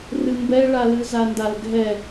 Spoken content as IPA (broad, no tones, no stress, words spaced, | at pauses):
rɨmbɛɭalɨ zandalɡʱɛ